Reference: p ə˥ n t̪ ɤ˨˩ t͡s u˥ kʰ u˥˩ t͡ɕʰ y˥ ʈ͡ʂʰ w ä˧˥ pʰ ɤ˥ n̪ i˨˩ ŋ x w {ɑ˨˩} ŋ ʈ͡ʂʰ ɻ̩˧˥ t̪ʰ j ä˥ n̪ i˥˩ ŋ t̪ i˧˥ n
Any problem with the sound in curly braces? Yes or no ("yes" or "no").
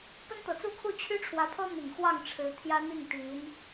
yes